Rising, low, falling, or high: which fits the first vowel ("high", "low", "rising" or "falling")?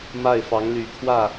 falling